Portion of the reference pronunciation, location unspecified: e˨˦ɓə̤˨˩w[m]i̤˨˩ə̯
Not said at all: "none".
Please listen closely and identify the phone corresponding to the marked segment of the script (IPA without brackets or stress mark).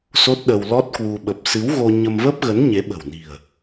n